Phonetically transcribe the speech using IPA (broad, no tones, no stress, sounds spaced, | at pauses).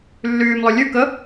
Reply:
lː yː m lˠ ɵ lʲ ʉ k ə